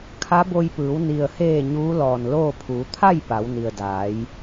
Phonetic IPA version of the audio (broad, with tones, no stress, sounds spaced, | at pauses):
kʰ a˧˥ b o˧ j p ɯː˩˧ w n i˩ ə̯ h eː˧˩ ɲ uː˧˥ l ɔː˧˩ n l oː˥˨ pʰ uː˩˧ t̪ʰ a˥˨ j p a˩˧ w n i˩ ə̯ d aː˩˧ j